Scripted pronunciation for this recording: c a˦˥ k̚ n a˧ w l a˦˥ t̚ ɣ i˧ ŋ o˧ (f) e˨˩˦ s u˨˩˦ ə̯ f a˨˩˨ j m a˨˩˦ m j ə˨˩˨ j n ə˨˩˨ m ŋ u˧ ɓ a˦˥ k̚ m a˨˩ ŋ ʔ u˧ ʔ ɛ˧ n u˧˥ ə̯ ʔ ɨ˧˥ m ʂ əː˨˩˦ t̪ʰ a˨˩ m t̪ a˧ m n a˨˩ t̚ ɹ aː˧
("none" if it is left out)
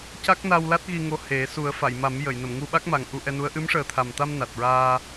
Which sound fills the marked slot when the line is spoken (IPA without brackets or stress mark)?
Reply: h